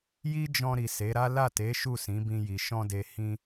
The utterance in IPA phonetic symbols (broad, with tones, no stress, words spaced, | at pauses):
ji˦d͡ʒɔ̃˧ ɾi˨se˨˦ɾa˦ la˦˨te˨˦ ʃu˦˨sĩ˨˦bĩ˧ji˨ ʃɔ̃˧de˨ hĩ˧